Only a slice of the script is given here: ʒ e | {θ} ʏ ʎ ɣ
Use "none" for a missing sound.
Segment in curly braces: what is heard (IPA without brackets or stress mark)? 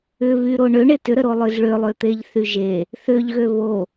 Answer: θ